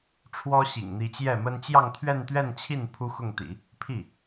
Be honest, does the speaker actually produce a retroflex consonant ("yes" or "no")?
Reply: yes